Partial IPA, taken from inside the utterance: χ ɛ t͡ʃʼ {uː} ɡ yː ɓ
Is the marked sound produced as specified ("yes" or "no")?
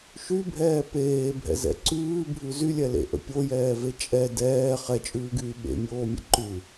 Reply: no